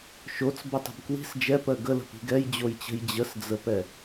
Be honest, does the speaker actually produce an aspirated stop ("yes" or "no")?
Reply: no